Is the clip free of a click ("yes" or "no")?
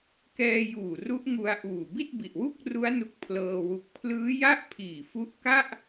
yes